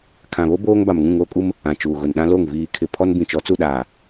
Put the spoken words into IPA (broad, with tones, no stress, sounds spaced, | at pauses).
kʰ ã˨ β o˦ b oː˦ ŋ b a˨ m ŋ ũ˦˨ ŋ oː˦ kʼ u˦ m | ã˨ t͡ʃ uː˨ ɣ ʊ˨ n ɗ ã˦ l o˦˨ ŋ v iː˨ kʰ ɪ˨ pʰ ɔ˦ n b ĩ˨ t͡ʃ ɔ˨˦ t͡s u˦˨ ɗ aː˨